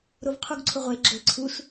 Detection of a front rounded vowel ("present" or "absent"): absent